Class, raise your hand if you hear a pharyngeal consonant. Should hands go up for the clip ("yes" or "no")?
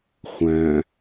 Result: no